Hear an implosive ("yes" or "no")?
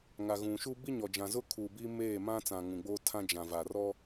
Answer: no